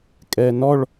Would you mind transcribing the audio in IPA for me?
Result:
kʼ ɛː n ɔ ɭ

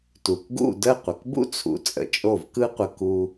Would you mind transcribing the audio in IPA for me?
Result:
t u˩ k ɡ ṵ˥˩ d ə˥˩ qʷ ə˩ k b ṵ˥ t͡sʰ ṵ˩˥ t͡sʼ ə̰˩˥ t͡ʃʼ o˥˩ v k ɯ˥ qʷ ə˧ k u˧

